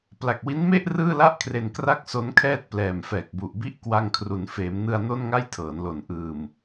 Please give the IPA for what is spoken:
p l a˨˩ k̚ w i˦˥ n m e˥˩ ʔ r ɯː˥˩ l a˥˩ ʔ kʰ r e˨˩ n k r a˥˩ k̚ s o˦˥ n kʰ ɛː˥˩ t̚ p l ɛː˨˩ m f ɛː˨˩ k̚ b u˨˩ ʔ b i˥˩ ʔ k w a˧ ŋ kʰ r u˩˦ n f eː˩˦ m n ɯ˧ a̯ n o˥˩ n ŋ a˥˩ j tʰ ɤː˩˦ n l o˨˩ n ʔ ɯː˨˩ m

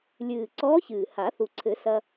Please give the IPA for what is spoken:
lʲ ɨː˨˩ ǀ ɔː˧˥ ç ɨː˨˩ h a˨˩˦ θ u˨˩ ǀʰ ɘ˨˩˦ s ɐ˧

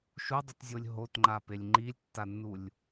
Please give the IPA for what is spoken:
ʃ u dˤ u t zʲ o lʲ ɦ o t ŋ͡ǃ a p e lʲ ŋ͡ǃ i lʲ tː a nː u lʲ

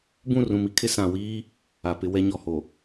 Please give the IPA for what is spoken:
b ũ˦˨ r ũ˨ m i˦ kʰ ɪ˦ s ã˨ w iː˦ | a˨ p ɪ˦ w ɛ˦ ɲ ɔ˨ h o˨

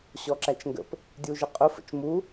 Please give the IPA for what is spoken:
ɕ ɔ ǁ æ t͡ʃ ŋ ɡ ə̰ p | dʲ u ʒ ɪ qʼ ʊ f ə̰ t͡ʃ m u

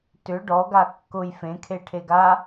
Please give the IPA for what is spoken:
t ʏ ɖ ɔ ɡ a kː ʊ j f ẽ kʰ e ʈʰ e ɡ a

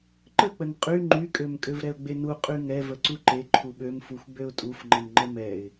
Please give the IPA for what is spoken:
ǃ ə k͡p ə n qʼ y ŋ͡ǃ y kʼ ø m kʼ ø v ɾ ɛ ʊ̯ ɡ͡b e n u qʼ y ŋ ɛ v ə ǀ u ǃ e ǃʰ u ɓ ø m f u xʷ ɡ͡b ø ʊ̯ tʼ u f ŋ͡ǃ ə n ŋ͡ǃ ə m ɛ ɪ̯

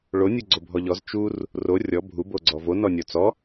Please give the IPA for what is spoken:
ɭ o nʲ u ɡ͡ǀ o bʱ ɔ ʎ ɔ z t͡ʃ u r | r o rʲ ɔ bʱ u b o ɡ͡ǀ ɔ v o n ɔ nʲ ɔ t͡s ɔ

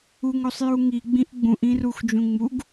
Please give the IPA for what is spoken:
u ŋ o sˤ j u ŋ i ɡ͡b ĩ ʔ ɡ͡b ũ ʔ ĩ r u x d͡ʒ ũ ŋ͡m u ɡ

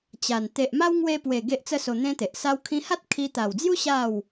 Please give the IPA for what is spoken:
t͡ɕ a˨˩ n t̪ e˨ ʔ m a˦ w ŋ w e˧ p w e˨˩ ɡ e˦ ʔ t͡s ə˦ s o˧ n̪ ẽ˦ t̪ e˨ ʔ s a˧ w kʰ ĩ˧ h a˦ t̚ kʰ i˧ t̪ a˨˩ w d͡z j u˦ ɕ a˥˧ w

